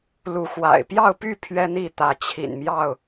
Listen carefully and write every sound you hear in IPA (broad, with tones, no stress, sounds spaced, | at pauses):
l u˨˦ x w a̰˨˩ ɪ̯ p j ɑ˥˨ ʊ̯ p y˥˨ pʰ ɥ ɛ˦ n̪ i˥˨ t̪ ä˨˦ t͡ɕʰ ḭ˨˩ n m j ɑ˥˨ ʊ̯